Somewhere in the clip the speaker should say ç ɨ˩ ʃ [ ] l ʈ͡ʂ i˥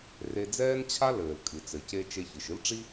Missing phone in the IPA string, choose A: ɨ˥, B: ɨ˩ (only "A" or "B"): A